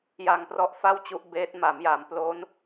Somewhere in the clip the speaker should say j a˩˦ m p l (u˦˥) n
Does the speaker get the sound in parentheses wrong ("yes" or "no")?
yes